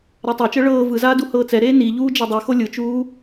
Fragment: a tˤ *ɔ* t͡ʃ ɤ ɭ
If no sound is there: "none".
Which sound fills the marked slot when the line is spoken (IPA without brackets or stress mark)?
ɤ